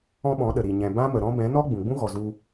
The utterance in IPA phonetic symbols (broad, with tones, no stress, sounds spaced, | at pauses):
ɔ̃˦ ɓ ɔ̃˨˦ ɗ ə˨ ɾ i˨ ɲ ɛ̃˨ b ã˦ m ə˨ ɾ ɔ̃˦ b ɛ̃˨˦ n ɔ˦ ɡ͡b ũ˨ ɡ͡b ũ˦ ɣ ɔ˨ z u˧